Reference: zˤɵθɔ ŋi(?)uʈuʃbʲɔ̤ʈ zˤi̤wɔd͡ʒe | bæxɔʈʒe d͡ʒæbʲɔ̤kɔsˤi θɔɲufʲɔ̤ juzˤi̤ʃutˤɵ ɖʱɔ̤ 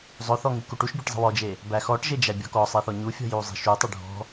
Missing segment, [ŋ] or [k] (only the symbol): k